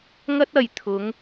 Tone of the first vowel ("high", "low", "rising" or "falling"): high